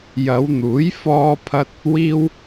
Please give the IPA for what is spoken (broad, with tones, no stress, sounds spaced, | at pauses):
j ɐ˨˧ w n̪ uː˨˥ j f ɔː˥ pʰ ɐ˥ t̚ | w iː˥ w